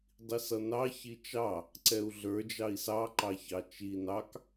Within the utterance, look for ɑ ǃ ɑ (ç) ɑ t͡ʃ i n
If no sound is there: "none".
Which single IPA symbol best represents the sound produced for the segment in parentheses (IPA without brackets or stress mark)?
ç